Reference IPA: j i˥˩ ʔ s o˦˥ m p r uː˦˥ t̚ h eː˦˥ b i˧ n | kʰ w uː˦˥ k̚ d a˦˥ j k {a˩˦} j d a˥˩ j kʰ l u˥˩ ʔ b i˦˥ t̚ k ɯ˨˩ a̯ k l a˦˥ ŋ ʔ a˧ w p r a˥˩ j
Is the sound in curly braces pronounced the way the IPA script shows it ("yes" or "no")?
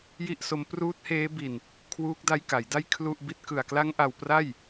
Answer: yes